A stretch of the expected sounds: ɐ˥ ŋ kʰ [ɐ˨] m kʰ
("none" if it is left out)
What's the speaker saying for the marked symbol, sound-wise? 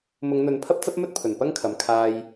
ɐ˨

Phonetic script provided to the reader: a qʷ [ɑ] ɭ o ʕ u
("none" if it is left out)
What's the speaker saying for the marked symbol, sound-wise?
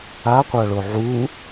a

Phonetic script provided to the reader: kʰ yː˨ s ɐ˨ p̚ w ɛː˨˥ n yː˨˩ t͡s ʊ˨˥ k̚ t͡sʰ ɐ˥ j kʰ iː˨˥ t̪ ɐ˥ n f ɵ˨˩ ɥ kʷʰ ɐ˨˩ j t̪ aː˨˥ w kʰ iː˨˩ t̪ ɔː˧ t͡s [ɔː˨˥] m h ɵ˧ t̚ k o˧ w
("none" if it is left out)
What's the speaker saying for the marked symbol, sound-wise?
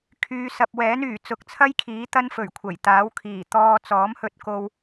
ɔː˨˥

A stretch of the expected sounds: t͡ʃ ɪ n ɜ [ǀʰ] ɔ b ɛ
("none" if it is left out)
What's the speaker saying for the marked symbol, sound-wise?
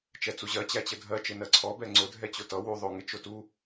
ǀʰ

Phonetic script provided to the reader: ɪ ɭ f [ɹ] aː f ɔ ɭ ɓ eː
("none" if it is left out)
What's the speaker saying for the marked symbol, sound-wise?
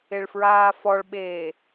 ɹ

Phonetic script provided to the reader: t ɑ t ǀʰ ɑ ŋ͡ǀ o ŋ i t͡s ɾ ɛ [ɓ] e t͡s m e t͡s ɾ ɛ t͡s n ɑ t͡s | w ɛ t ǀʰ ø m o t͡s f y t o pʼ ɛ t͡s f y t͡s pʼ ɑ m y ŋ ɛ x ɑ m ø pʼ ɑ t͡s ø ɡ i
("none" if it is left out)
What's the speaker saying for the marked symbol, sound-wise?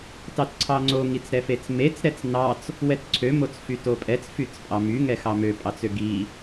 f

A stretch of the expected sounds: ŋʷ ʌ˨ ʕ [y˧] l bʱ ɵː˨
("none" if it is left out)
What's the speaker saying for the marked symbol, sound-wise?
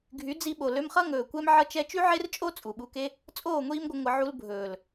u˧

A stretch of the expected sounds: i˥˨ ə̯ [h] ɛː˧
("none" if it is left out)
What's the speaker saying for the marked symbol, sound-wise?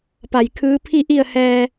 h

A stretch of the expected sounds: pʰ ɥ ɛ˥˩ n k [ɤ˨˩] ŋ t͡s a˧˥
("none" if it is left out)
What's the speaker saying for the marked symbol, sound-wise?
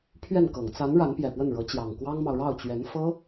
ɤ˨˩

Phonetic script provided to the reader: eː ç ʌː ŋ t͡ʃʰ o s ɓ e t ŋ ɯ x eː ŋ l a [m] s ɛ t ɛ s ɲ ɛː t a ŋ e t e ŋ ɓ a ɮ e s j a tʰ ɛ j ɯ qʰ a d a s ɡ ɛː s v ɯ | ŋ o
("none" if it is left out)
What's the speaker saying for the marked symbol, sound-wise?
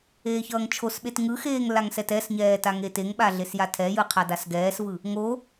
ŋ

